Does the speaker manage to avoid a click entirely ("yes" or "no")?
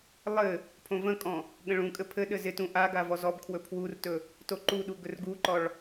no